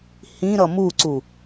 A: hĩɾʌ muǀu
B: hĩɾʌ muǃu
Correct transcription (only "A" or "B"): A